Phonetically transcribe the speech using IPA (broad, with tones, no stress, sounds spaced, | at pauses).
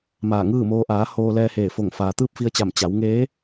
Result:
m aː˧˩ ŋ ɯː˥˨ m oː˧ ʔ aː˩˧ h oː˧ l ɛː˧ h eː˧˩ f o˧˩ ŋ f aː˩ t̪ ɯː˥˨ p̚ f i˧ ə̯ t͡ɕ a˧˩ m t͡ɕ a˩˧ w ŋ eː˧˥